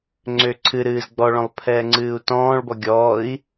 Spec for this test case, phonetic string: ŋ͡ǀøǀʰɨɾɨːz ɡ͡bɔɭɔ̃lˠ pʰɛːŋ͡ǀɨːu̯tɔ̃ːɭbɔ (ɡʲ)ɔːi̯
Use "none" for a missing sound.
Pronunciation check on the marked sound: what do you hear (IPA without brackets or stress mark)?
ɡʲ